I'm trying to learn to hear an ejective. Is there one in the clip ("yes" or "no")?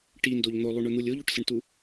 no